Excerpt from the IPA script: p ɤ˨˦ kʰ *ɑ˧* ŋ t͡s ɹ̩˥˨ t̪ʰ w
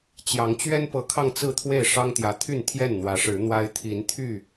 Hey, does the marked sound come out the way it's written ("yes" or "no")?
yes